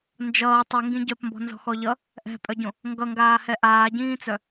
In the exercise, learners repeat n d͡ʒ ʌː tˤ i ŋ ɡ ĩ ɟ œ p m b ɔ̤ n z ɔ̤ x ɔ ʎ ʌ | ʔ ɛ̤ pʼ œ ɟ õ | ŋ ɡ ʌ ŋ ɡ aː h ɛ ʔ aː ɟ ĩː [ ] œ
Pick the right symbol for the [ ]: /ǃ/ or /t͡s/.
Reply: t͡s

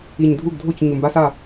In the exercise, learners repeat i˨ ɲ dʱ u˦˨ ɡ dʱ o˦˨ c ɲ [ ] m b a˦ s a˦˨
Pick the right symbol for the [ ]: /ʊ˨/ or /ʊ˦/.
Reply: ʊ˨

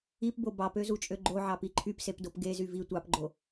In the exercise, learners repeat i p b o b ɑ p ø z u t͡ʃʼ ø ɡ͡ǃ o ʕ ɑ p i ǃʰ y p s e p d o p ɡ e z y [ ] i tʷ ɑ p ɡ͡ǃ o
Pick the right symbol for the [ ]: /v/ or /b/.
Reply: v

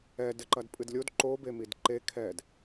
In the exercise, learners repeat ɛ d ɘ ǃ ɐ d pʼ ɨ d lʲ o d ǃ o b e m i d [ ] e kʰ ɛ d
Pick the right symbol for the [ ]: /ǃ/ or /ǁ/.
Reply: ǃ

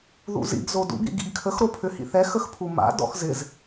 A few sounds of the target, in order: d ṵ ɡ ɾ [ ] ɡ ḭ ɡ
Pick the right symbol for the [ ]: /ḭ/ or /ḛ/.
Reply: ḭ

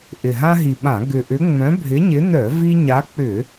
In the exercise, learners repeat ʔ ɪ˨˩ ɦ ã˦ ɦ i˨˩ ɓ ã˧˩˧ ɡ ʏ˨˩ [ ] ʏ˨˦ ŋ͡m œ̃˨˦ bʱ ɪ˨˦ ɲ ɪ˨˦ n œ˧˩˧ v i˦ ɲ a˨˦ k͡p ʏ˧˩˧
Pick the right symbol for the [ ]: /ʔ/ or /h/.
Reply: ʔ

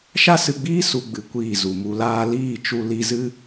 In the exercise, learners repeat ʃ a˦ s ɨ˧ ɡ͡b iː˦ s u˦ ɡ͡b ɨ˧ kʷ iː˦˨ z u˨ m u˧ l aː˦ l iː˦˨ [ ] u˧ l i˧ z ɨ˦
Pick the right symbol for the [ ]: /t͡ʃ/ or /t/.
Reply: t͡ʃ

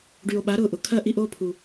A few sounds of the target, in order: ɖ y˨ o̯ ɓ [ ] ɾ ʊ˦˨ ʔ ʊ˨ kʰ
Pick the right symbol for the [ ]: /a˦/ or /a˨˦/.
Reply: a˨˦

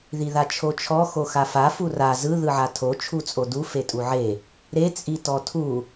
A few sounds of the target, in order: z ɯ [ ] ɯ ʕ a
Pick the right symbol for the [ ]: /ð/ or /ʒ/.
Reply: ð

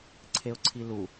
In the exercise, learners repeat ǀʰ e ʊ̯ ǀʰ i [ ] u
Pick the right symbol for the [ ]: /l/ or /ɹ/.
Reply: l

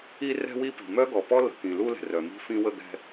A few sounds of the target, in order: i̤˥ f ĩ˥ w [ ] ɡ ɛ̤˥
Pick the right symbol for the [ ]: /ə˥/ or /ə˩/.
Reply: ə˥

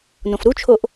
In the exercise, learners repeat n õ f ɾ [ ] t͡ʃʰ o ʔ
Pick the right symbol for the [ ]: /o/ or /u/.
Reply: u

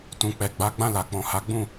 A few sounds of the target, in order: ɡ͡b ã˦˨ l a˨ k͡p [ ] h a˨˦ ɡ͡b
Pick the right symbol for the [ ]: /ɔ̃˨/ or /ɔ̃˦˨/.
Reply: ɔ̃˨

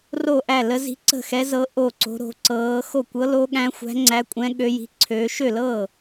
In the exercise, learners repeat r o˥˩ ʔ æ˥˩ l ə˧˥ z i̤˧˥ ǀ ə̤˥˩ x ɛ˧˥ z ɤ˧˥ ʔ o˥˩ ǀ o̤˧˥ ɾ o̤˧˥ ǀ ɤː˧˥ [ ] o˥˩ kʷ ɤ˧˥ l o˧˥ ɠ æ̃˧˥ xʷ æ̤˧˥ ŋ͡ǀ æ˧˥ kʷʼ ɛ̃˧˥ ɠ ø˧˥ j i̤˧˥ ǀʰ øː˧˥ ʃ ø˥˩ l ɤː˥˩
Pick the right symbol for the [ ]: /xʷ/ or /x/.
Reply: x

